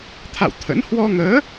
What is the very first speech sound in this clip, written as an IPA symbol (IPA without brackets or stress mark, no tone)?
t̪ʰ